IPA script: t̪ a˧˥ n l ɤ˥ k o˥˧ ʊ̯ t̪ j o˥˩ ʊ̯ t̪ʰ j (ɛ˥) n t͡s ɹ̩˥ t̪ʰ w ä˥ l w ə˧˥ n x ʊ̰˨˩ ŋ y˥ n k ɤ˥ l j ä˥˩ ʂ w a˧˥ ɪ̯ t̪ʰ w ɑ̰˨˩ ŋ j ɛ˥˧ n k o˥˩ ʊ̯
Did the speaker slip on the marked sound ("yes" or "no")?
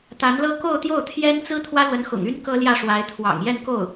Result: no